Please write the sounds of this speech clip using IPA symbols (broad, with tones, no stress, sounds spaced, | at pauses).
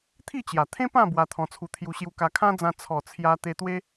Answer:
t̪ʰ i˥˧ t͡ɕ j a˨˩ t̪ʰ ẽ˦ p ã˥˧ b w a˧ t̪ʰ ɔ̃˧ t͡sʰ u˧ t̪ʰ j u˧ ɕ j u˧ k a˧ kʰ ã˦ d͡z ã˧ t͡sʰ ɔ˨˩ t͡sʰ j a˧ t̪ e˧ t̪ w e˦